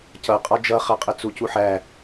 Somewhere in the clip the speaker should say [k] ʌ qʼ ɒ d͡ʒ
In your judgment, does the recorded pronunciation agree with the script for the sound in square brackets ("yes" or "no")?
no